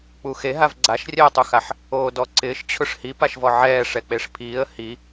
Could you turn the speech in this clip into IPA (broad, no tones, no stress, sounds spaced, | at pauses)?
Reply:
k͡p u x e ɦ a v ɡ͡ǀ a ʃ rʲ ɛ ə̯ tˤ u x a ħ | oː d ɔ ǀ ɪː ʃ t͡ɕʰ ʊ ʂ h i p a ʃ v ɔ ʕ ɛː ʂ ɛ k͡p e ʂ pʰ iː ə̯ h i